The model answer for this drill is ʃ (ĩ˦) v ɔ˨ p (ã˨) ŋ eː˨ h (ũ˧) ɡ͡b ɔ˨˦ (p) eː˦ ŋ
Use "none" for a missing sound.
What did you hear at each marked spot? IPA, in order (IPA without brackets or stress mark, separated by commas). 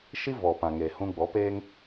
i˦, ã˨, ũ˧, p